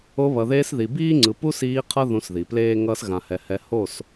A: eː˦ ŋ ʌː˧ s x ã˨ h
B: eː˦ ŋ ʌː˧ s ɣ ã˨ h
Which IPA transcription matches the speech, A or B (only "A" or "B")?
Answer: B